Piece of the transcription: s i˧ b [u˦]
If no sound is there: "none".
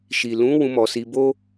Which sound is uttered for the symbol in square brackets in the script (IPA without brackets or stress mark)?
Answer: o˦